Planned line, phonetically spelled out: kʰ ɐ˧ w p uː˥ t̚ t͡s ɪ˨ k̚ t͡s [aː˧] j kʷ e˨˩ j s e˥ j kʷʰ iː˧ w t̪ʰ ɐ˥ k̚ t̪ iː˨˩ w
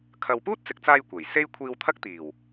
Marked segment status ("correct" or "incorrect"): correct